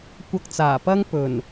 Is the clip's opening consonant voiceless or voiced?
voiceless